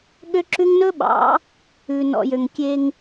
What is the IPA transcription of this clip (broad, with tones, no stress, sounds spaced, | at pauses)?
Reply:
ɠ ø˦ ǁ ʉ˦ ŋ n ɵ˦ ɓ ɑ̰˨˦ | ʉ˨ n ɔ̰˨ j ø˨ ŋ kʲ e˦ ŋ